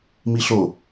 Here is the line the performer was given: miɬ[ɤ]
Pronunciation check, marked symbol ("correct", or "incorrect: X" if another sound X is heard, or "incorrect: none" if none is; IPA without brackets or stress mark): incorrect: o